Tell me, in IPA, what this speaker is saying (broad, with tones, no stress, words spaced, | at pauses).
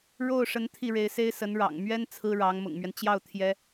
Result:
ɻo˥˩ʊ̯ʂə˧˥n t̪ʰi˥˩ɻe˧˥ɪ̯se˥ɪ̯sə˧˥n ɻɑ̰˨˩ŋmɥɛ˥n t͡sʰɹ̩˥ɻɑ˧˥ŋ mʊ̰˨˩ŋmɥɛ˦n t͡ɕjɑ˥˩ʊ̯ t̪ʰjɛ˥